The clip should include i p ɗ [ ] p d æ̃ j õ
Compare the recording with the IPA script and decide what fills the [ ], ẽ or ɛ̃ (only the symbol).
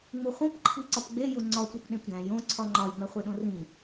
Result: ẽ